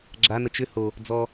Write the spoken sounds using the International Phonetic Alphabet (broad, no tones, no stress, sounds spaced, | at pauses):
ɡ͡ǁ a n ə t͡ʃ ʏ h o | d͡z ɔ